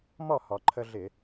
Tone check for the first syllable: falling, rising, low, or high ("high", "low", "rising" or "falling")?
falling